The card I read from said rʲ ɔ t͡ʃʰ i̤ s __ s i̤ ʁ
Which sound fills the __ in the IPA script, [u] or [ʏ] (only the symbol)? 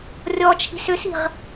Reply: ʏ